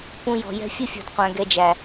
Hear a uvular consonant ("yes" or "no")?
yes